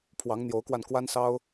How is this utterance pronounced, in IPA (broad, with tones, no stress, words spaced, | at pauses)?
pʰwɑ˧˥ŋn̪jo˧˥ʊ̯kwa˧n kwa˥nsɑ˥ʊ̯